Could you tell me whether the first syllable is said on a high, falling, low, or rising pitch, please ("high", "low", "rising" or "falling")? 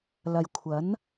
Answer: low